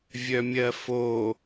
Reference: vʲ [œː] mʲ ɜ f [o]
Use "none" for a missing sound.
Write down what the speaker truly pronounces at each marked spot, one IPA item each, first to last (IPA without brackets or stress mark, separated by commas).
œ, o